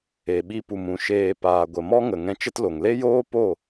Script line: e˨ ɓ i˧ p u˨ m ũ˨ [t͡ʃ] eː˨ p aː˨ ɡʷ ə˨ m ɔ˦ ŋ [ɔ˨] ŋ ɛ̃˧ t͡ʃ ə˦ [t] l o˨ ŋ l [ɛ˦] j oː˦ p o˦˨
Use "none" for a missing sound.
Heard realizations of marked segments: ʃ, ə˨, t, e˦

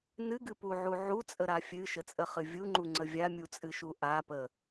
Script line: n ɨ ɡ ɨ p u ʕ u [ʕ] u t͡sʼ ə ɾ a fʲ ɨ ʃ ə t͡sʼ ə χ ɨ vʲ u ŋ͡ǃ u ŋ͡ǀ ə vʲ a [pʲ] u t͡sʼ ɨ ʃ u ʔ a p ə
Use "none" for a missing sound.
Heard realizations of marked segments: ʕ, mʲ

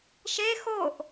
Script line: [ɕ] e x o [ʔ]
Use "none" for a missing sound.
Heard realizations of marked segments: ʃ, ʔ

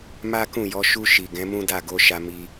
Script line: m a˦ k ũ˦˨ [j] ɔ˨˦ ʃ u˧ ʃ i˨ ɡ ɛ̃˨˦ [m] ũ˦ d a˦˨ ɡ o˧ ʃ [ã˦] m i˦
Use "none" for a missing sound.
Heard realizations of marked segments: j, m, a˦

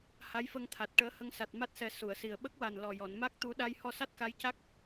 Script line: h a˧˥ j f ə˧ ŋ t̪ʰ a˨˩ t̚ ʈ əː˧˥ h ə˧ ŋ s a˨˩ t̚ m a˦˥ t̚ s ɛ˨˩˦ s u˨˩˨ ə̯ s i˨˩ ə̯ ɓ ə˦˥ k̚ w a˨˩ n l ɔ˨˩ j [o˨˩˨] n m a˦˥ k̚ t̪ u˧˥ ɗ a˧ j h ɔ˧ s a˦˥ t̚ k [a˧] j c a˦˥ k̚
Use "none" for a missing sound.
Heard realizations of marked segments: ɔ˨˩˨, a˧˥

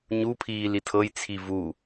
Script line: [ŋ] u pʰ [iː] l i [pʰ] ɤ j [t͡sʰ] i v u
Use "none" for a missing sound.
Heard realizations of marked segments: ɲ, iː, tʰ, t͡sʰ

